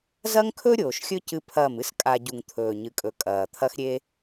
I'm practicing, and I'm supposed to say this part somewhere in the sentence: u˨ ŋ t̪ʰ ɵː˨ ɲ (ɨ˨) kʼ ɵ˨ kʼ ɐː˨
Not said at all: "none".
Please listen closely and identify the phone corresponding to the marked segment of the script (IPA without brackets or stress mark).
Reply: ɨ˨